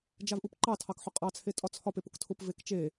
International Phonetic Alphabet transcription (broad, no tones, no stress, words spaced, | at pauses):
d͡ʒavʔupǃɑtʰɑk ħʊqʼɑt͡sʰe tʼɒt͡sʰɒpep ʊktʰʊpvek t͡ʃe